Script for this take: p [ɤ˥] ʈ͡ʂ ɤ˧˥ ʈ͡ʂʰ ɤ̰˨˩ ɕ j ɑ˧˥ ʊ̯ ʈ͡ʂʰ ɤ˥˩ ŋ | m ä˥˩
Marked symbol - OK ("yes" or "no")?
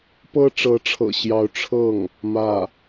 yes